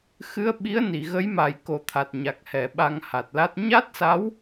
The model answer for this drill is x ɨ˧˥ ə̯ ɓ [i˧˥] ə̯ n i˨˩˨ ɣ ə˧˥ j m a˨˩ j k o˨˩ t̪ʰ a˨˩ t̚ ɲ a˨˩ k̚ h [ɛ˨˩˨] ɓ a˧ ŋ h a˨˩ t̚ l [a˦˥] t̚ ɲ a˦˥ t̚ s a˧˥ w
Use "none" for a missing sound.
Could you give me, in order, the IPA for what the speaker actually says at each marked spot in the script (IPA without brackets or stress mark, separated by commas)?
i˧˥, ɛ˨˩˨, a˦˥